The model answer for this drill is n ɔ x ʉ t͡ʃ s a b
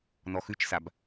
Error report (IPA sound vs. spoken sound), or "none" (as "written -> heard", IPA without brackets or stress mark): none